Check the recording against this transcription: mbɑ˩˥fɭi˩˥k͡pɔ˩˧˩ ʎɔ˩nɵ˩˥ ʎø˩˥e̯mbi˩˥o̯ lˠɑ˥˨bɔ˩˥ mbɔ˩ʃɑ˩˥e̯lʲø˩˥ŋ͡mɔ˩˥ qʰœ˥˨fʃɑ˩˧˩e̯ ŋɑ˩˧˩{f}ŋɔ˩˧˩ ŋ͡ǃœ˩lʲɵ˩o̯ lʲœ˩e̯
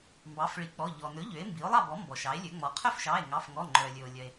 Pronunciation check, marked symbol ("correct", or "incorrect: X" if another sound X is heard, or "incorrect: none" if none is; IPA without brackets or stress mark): correct